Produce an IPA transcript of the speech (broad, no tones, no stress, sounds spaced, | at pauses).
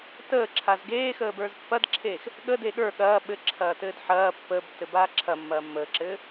t əː ǁʰ a z ɡ eː x əː b ə˞ z pː ɐ d ǁʰ eː x | ɠ ə d e ɠ ə˞ ɠ ɐː ɓ ɘ ǁʰ ɐː t ɘː d ħ ɐː pː əː b tː ɘ b aː ǁʰ ɐ mː ɐː mː əː ǁ ɘː